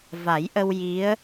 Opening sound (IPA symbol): v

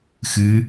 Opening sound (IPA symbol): x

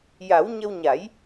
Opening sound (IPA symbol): j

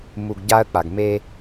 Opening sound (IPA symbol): m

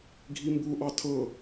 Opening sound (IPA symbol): ɡʱ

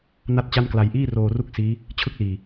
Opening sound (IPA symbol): n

